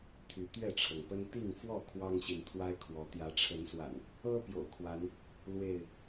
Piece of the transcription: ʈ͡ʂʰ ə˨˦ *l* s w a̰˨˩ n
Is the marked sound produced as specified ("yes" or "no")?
no